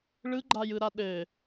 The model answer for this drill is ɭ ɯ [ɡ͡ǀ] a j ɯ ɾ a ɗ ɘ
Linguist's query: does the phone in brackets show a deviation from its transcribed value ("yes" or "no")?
yes